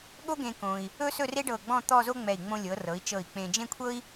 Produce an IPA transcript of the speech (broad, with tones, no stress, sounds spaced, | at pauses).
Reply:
ɠ o˥ ɡ ẽ˧ k õ˧ i̯ | ɵ˥ s ɵ˥˧ r e˥ ɖ ɤ˧˩ ɡ͡b ɔ̃˥˧ t̪ ɔ˥˧ z o˥ ŋ͡m ɛ˧˩ i̯ ŋ͡m õ˧ lʲ ɤ˩˧ r ɤ˩˧ i̯ t͡ʃ ɤ˧˩ i̯ k͡p ẽ˧ d͡ʒ ẽ˥˧ kʷʰ ɤ˥ i̯